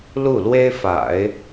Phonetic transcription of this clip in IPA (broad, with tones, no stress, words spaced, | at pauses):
lu˥˩lwe˥ɪ̯fa̰˨˩˦ɪ̯